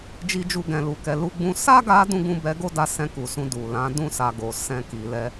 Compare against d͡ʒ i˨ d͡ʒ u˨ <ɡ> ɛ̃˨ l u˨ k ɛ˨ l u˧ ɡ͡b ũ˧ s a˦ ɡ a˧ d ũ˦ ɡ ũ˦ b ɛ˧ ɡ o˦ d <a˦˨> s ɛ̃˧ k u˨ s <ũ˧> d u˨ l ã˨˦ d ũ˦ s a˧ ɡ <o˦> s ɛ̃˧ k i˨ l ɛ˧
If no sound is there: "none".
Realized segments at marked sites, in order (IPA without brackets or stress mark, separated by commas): ɡ, a˧, ũ˧, o˨